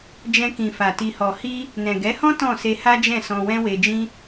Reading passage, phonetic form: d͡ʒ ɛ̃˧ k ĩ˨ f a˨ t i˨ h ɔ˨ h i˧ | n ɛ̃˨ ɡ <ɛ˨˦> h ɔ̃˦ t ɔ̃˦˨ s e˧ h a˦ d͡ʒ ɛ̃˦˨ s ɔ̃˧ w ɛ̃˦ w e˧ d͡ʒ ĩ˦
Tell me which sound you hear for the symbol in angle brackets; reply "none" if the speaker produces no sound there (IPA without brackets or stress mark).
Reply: ɛ˨˦